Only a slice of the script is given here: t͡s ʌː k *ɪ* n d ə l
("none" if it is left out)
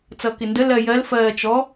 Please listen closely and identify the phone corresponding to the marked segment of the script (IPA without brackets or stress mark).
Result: ɪ